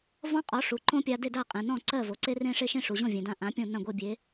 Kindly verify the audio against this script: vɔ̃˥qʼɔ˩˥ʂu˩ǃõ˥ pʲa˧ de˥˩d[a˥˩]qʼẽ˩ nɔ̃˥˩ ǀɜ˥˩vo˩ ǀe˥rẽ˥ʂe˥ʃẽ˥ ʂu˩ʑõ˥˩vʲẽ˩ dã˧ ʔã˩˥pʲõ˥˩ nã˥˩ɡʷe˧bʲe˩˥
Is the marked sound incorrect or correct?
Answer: correct